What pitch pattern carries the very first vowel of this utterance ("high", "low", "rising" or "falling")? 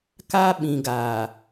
high